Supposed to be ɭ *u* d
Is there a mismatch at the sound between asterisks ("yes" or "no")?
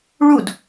no